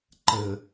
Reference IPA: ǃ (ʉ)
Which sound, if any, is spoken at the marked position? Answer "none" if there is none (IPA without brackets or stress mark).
ə